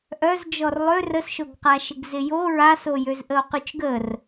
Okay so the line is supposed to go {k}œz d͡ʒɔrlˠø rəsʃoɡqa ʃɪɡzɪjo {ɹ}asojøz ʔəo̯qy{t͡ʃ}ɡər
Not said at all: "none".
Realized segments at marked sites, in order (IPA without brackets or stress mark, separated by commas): ʔ, ɹ, t͡ʃ